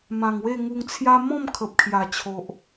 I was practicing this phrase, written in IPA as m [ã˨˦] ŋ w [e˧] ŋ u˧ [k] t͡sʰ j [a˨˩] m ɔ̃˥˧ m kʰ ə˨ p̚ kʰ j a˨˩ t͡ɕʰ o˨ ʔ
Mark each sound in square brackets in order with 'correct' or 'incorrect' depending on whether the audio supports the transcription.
incorrect: ã˨˩, incorrect: e˥˧, incorrect: ŋ, incorrect: a˦

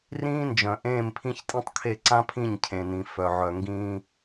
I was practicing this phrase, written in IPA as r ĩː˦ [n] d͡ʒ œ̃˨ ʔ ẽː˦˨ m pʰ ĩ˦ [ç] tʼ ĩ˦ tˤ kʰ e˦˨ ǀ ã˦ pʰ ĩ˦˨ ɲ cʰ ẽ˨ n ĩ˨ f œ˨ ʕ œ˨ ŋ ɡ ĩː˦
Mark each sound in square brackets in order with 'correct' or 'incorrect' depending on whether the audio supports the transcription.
correct, correct

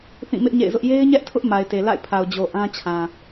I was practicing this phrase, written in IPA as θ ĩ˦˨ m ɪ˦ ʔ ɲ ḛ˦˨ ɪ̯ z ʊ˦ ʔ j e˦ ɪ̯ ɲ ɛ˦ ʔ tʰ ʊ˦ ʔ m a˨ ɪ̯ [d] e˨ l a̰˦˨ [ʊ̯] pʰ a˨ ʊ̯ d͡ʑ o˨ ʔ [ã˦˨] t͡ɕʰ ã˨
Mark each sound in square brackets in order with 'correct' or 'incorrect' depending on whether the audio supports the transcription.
incorrect: t, incorrect: ɪ̯, incorrect: ã˦

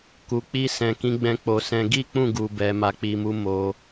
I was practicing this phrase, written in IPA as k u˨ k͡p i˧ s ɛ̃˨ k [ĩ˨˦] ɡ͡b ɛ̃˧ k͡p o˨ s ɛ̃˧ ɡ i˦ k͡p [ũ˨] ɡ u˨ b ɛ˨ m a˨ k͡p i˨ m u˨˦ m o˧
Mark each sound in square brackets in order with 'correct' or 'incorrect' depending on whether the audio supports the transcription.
correct, incorrect: ũ˦˨

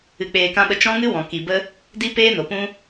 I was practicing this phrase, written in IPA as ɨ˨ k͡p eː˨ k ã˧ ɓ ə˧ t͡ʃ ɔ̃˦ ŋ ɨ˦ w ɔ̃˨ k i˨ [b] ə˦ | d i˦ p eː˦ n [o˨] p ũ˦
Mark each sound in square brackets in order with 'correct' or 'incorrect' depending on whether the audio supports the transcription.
correct, correct

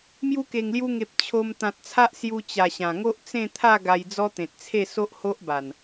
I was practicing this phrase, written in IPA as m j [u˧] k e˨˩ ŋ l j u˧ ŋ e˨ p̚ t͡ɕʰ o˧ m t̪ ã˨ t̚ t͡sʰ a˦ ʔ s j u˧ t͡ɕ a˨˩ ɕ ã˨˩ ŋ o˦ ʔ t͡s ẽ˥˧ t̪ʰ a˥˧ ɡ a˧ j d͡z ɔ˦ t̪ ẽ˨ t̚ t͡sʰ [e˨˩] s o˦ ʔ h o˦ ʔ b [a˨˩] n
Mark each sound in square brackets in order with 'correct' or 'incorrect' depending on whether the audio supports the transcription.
correct, incorrect: e˥˧, correct

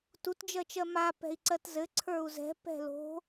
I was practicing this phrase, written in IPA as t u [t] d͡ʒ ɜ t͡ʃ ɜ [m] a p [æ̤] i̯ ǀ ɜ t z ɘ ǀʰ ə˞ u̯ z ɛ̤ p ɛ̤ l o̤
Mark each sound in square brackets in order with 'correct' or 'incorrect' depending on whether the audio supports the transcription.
correct, correct, incorrect: ɛ̤

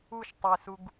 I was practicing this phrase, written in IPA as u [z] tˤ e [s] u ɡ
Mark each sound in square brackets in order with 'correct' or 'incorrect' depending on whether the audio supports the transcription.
incorrect: ʃ, correct

